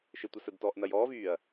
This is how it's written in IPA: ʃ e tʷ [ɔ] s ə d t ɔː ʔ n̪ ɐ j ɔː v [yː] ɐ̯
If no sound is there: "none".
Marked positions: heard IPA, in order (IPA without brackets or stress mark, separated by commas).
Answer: ʌ, yː